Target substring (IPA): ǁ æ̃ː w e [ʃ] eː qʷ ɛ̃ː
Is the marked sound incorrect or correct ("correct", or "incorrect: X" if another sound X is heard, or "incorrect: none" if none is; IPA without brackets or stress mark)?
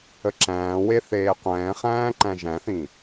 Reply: incorrect: θ